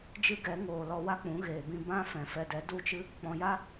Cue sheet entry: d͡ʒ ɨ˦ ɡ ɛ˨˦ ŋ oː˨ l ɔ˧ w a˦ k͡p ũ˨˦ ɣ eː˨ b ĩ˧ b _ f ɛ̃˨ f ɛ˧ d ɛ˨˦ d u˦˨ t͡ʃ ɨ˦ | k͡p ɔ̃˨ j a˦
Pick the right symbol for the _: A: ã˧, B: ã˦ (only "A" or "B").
B